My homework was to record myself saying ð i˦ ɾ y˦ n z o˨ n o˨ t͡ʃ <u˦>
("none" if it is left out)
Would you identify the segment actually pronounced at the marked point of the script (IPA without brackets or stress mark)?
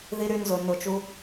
u˦